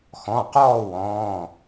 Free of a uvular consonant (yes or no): no